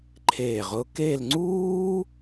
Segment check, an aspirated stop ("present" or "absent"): present